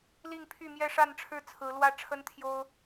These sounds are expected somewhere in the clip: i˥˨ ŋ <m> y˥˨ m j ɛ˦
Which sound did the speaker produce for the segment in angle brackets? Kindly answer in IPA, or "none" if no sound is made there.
pʰ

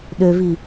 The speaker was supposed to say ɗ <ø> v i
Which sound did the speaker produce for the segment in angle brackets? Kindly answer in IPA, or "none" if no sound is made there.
ø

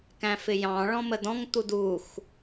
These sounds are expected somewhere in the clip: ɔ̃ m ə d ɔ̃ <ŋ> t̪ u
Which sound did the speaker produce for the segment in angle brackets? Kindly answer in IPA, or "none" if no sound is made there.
ŋ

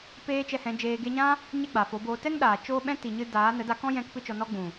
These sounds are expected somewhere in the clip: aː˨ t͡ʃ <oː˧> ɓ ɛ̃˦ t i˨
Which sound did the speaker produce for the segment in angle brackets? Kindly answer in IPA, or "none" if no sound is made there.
oː˦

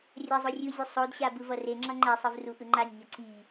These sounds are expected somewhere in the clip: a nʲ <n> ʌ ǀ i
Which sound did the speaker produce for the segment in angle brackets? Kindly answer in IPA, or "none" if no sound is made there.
ɲ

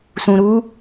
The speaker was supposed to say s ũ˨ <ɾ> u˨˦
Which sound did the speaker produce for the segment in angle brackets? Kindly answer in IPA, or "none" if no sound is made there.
ɾ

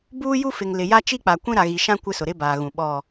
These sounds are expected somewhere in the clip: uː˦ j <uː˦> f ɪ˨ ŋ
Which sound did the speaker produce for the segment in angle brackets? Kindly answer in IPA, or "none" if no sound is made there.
u˦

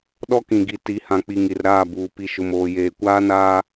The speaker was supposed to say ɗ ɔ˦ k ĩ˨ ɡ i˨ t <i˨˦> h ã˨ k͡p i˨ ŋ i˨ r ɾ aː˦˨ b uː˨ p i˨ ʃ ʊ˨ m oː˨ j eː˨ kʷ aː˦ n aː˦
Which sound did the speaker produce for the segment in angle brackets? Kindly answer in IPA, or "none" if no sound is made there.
i˨˦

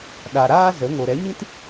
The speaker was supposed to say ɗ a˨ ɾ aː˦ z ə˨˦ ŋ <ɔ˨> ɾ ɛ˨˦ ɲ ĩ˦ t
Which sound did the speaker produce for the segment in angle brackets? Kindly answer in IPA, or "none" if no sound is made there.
o˨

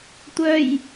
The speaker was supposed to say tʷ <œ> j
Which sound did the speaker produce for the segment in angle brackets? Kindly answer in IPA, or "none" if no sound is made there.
œ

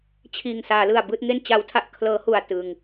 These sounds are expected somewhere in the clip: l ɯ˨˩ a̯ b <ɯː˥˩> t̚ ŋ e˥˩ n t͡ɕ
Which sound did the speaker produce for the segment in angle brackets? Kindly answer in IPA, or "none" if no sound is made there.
ɯː˥˩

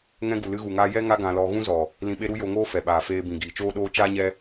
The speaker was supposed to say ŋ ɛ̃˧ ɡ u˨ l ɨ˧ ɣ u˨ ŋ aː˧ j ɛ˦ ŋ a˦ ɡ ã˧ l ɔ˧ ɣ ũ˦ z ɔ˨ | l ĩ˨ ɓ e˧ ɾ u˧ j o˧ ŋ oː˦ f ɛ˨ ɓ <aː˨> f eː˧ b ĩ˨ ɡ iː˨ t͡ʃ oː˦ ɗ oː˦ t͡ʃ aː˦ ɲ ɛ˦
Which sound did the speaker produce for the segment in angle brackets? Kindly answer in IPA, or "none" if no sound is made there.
aː˨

